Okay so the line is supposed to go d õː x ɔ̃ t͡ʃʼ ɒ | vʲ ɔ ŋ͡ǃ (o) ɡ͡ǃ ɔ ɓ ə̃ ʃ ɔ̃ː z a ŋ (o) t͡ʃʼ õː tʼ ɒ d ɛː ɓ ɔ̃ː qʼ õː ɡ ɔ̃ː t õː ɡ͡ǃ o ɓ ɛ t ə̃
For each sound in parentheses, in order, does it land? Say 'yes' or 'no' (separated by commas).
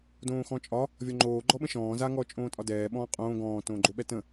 no, no